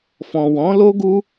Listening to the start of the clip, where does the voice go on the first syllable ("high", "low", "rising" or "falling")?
low